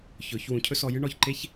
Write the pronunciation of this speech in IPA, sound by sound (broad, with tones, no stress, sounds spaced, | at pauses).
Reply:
ç ɵ˨˦ ç w ũ˧ cʰ ɵ˦ s ɔ˧ j ɨ˦ ɳ ɔ˨ ç ǃ e˦ ç